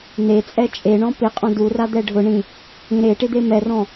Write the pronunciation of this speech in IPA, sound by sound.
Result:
n̪ e t͡sʼ ɛ t͡ʃʼ e ɳ ɔ̃ p ɪ qʼ ɔ̃ d u r a d̪ ɛ ɖʱ ʊ ɳ ĩ | ĩ ɾ e ʈ ɪ d̪ e m ɛ r ɔ̃

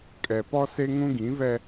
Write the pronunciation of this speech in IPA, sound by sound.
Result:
kʼ ɛ˨ p ɔ˦ s e˦ ŋ ũ˦ ɡ ĩ˨˦ v ɛ˦

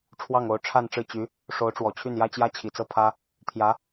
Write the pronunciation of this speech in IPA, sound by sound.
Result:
ʈ͡ʂʰ w ɑ˥˩ ŋ o˧˥ ʊ̯ ʈ͡ʂʰ a˥˧ n ʈ͡ʂ ɻ̩˥˩ t͡ɕ y˧˥ | ʂ o˧˥ ʊ̯ ʈ͡ʂ w ɔ˨˩ t͡ɕʰ y˥˩ n j ä˥ t͡ɕ j ä˥ t͡ɕʰ i˨˩ t͡s ɤ˥˩ pʰ ä˥ | t̪ʰ j ä˧˥

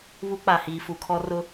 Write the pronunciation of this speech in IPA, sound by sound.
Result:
β u˦ k͡p a˨ h iː˨ f u˨ kʰ ɔ˦ r ʊ˦

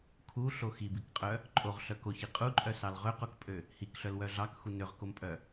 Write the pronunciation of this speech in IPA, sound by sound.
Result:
kʰ u ɬ o x i b i k qʼ œ | ǃʼ o ʁ ɬ œ k o ç i qʼ u ǃʼ œ s ɑ l ʁ ø q o k pʼ ø | h i k ɬ œ l w œ ɮ ɑ k x u n ø ʁ k o m pʼ œ

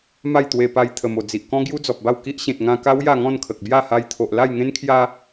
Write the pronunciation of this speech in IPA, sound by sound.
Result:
m a˥˧ j t̪ w e˧ p a˧ j t̪ʰ ə˨˩ m o˨˩ d͡z i˨ ʔ k ɔ̃˦ ɡ j u˦ d͡z ɔ˨ p̚ b a˥˧ w k i˦ ʔ ɕ ẽ˨ t̚ ŋ ã˧ k a˦ w j a˥˧ ŋ ɔ̃˥˧ n kʰ ə˨ k̚ b j a˥˧ h a˧ j t̪ʰ o˨ ʔ l a˥˧ j ŋ ẽ˦ n kʰ j a˦

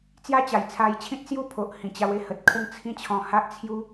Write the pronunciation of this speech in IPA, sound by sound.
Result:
t͡s j a˥˧ t͡ɕ a˨˩ j t͡sʰ a˧ j t͡ɕʰ ĩ˦ t̚ s j u˥˧ pʰ o˨ ʔ h ĩ˨˩ t͡ɕ a˧ w e˥˧ h ə˨ t̚ kʰ ə˥˧ ŋ t͡sʰ ĩ˦ t͡ɕʰ ɔ̃˧ h a˦ ʔ t͡sʰ j u˦

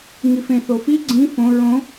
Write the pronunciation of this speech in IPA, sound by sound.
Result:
ŋ i f ẽ θ o f i ɡ͡ǀ ĩ f õ ɹ õ

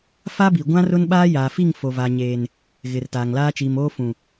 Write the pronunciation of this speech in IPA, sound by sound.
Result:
f a˦ b i˨ ɡʷ ã˦ r ʊ˦ n ɓ aː˦ j aː˨ f i˦˨ ŋ f o˨ v aː˨ ɲ eː˨ n | ɣ ɪ˨ r t aː˨ ŋ l aː˦ t͡ʃ iː˨ m oː˦ f ũ˨

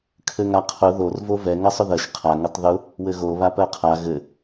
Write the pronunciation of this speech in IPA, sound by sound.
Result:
kʰ ɘ ŋ a qʰ ʊ ð o r v o v ɛ ŋ ɜ sˤ ʊ ð ɜ ʃ qʰ a ŋ ɘ tˤ ð ʊ | w ɘ ɣ o β a p ɜ qʰ a ɣ ɘ

